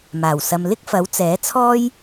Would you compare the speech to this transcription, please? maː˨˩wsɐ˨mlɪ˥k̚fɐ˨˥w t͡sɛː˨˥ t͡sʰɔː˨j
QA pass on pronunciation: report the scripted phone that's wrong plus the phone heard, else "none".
ɔː˨ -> ɔː˥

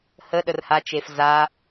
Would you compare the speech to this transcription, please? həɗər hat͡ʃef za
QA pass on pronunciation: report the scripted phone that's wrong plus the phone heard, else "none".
none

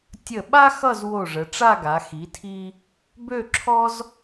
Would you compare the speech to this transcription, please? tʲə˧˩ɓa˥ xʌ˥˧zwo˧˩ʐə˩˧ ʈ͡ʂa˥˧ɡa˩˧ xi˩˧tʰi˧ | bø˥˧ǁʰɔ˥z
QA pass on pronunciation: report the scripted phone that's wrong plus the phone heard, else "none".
none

